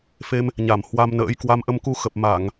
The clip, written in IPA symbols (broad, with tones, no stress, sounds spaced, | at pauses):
f e˧ m | ɲ a˧˩ m h w a˧ m n ə̰ː˧˥ j k w a˧ m ʔ ə˧ m k u˧ x ə˨˩ p̚ m a˧˩˨ ŋ